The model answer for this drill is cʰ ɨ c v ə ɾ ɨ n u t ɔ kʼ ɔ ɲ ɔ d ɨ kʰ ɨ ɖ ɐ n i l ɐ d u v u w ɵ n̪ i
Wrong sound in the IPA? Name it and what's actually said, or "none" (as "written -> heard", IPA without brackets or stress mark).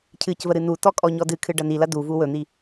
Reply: none